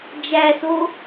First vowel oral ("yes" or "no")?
yes